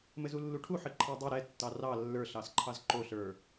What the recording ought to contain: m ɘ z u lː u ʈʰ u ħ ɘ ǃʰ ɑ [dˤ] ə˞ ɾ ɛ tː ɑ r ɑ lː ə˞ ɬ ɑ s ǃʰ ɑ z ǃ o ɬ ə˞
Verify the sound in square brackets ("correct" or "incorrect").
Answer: correct